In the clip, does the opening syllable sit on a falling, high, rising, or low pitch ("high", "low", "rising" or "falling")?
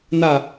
falling